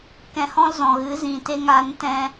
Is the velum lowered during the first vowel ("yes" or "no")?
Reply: yes